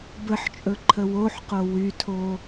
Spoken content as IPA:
bəħt͡ʃʼɵǃʰə woħqo wytʰo

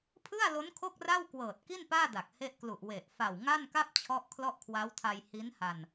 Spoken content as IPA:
pʰɯ˥˩a̯lo˦˥n kʰo˥˩k̚ra˥˩wkwɤː˨˩t̚ki˥˩n paː˥˩da˨˩k̚he˦˥ʔklu˨˩ʔ we˨˩ʔ fa˨˩w ŋa˥˩nka˥˩p̚t͡ɕʰɔ˦˥ʔ kʰlɔ˥˩ʔkʰwa˦˥wtʰa˧j hi˦˥nha˧n

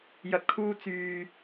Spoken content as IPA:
jɐ˨t̚kʰuː˧ t͡syː˨

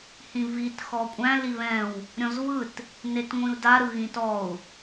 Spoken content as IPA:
hĩvit xɔkʷʼæ̃ liβɛ̃w | ɾʲɔ̃zvɯt | netŋʷĩu̯da ɾɯɣĩtɔu̯

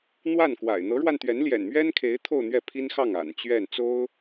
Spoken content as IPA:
n̪wa˥˩n kwa̰˨˩ɪ̯ n̪ɤ˧˥ɻwa˧n t̪ɥɛ˧˥nljɛ̰˨˩nmɥɛ˥nkʰe˧˥ɪ̯ t̪ʰo˥˧ʊ̯n̪ɥɛ˥˩pʰi˥nxɑ˥˩ŋ a̰˨˩nt͡ɕɥɛ˥˩n t͡so˥ʊ̯

